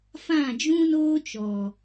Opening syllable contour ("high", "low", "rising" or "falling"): falling